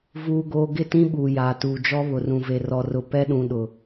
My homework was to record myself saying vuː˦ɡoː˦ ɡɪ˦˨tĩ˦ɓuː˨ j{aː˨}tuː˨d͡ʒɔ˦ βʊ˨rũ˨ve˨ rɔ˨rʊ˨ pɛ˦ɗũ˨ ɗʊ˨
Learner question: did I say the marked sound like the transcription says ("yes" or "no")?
yes